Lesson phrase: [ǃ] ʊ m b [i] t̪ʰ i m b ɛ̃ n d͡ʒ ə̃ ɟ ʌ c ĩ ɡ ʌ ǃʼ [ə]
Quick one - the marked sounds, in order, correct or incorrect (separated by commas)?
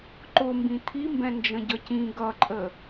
correct, incorrect, correct